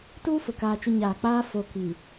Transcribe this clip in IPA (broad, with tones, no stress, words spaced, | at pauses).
tuː˦fʊ˨ kaː˨t͡ʃʊ˨ ɲaː˨k͡paː˦ fo˨kiː˨